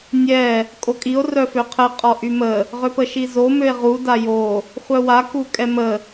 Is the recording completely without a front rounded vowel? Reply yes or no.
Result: no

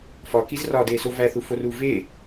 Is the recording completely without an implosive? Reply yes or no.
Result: yes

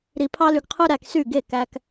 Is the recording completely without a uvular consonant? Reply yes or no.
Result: no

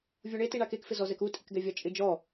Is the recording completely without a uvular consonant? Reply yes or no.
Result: yes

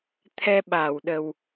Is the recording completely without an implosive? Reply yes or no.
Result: no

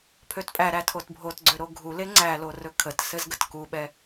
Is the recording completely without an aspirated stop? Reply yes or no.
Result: no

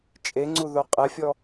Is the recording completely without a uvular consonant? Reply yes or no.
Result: no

